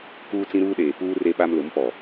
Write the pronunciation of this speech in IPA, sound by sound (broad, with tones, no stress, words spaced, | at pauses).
kuː˦t͡sĩ˦ɾuː˦ ɗeː˨puː˦ re˦ɓa˦m lʊ˨˦mpɔ˨